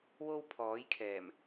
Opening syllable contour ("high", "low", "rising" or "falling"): high